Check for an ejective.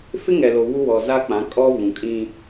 present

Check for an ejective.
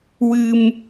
absent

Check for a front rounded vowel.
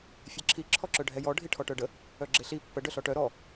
present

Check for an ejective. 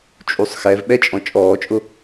present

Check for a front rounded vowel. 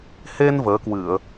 absent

